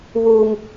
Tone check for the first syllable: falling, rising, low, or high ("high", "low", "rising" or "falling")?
high